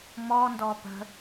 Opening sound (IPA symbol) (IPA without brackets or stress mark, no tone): m